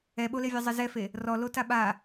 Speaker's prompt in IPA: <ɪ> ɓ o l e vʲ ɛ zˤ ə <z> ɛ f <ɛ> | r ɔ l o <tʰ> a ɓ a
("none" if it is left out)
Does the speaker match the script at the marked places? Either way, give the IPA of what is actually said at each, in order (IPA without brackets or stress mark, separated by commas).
ɛ, z, e, t